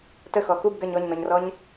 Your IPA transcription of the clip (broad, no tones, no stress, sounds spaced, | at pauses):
t ə x ɔ x u b ɡ ɐ ɲ ɔ ɲ n ɔ ɲ r ɔ ɲ